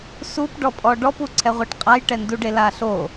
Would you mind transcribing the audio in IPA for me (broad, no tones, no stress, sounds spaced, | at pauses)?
s u p ɖ ɔ pʼ ɔ ɖ ɔ p u ǀʰ ɛ ʁʷ ɤ ʈ qʼ a j ʈ ɛ n d u ɖ e l a ɬ o